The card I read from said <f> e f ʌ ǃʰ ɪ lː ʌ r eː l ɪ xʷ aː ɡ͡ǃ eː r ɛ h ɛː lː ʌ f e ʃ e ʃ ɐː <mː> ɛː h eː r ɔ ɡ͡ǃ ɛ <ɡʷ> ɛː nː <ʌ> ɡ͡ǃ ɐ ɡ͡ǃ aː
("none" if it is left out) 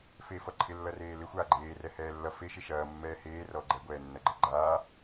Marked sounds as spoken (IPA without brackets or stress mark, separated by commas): f, mː, ɡʷ, ʌ